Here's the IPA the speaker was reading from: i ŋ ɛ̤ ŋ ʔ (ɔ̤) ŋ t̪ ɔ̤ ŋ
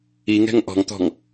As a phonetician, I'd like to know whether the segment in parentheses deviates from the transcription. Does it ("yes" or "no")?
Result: no